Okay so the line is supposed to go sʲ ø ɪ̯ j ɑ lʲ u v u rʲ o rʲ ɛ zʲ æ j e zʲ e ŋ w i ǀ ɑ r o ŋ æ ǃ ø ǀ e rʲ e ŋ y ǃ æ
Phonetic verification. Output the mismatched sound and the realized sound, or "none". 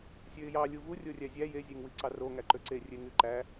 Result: ɛ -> æ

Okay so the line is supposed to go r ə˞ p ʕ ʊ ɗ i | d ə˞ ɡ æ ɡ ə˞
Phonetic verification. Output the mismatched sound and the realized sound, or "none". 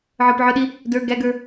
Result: r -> ʕ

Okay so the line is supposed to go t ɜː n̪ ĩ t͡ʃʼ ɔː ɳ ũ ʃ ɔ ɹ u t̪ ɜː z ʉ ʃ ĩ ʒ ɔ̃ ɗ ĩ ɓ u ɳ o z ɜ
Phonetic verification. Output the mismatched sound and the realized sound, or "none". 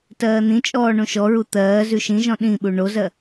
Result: none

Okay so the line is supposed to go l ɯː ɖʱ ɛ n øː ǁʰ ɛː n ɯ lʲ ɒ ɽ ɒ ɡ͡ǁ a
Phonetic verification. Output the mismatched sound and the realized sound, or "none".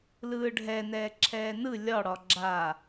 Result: øː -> ɛː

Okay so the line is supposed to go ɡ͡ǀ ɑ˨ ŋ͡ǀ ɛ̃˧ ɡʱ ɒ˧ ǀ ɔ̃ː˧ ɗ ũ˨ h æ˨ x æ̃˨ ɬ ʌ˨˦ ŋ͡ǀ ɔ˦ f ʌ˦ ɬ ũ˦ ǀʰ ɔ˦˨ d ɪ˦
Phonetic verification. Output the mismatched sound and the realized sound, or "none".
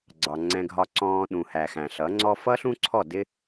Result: none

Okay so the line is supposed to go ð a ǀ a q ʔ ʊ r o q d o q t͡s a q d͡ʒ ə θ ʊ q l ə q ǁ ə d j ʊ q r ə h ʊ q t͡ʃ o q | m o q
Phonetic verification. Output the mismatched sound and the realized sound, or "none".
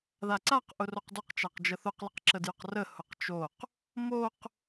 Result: t͡s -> t͡ʃ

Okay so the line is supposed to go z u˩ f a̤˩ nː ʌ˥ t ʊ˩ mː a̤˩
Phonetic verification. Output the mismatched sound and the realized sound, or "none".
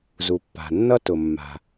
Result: f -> pː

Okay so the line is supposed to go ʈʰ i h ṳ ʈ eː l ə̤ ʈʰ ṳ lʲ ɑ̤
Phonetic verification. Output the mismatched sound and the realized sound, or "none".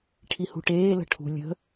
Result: ɑ̤ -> ə̤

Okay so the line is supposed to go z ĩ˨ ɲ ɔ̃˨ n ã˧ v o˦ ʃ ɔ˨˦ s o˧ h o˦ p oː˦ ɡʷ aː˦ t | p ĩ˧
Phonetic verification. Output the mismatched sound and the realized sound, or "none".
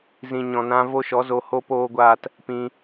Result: s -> z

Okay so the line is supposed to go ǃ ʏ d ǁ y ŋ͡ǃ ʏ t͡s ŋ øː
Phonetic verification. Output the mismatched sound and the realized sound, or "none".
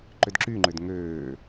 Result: t͡s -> d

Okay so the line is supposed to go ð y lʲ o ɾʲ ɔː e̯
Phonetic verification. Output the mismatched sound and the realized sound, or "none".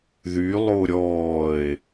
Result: lʲ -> lˠ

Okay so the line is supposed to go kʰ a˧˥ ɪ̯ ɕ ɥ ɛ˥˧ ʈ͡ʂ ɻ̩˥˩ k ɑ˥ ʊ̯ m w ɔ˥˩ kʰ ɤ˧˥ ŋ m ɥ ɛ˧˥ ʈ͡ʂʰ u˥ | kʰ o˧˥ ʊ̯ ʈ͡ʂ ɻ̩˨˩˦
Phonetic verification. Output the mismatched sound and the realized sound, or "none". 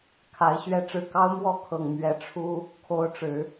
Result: ɤ˧˥ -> ɤ˨˩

